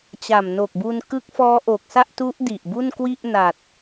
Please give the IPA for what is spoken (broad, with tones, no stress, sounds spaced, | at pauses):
t͡ɕ a˨˩ m n o˨˩ k̚ b u˧ n k ɯ˦˥ k̚ f ɔː˦˥ ʔ o˨˩ k̚ s a˥˩ ʔ t u˦˥ ʔ d i˨˩ ʔ b u˥˩ n k w i˥˩ ʔ n a˨˩ t̚